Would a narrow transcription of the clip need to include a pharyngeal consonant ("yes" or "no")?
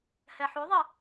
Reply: yes